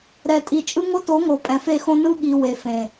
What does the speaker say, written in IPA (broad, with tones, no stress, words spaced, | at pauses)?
ɾɛ˨tʼi˨t͡ʃʼɯ˦ ŋo˦to˨˦ ŋo˨pʼɛ̃˨fe˦˨xõ˦ nɯ˦ɠi˨ we˨ fẽ˨